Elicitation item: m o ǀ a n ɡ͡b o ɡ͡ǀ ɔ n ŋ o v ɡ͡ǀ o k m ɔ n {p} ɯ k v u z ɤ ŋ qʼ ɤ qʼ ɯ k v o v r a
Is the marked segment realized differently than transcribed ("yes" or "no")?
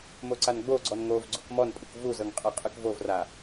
yes